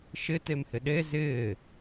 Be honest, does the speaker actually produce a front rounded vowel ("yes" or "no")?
no